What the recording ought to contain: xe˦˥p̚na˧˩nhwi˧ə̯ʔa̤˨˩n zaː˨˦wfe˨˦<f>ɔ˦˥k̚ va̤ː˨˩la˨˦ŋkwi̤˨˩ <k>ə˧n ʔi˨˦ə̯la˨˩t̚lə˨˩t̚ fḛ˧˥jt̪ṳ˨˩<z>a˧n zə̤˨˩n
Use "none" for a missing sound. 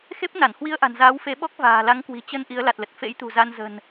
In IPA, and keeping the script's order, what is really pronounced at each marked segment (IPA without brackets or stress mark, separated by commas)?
ɓ, t͡ɕ, z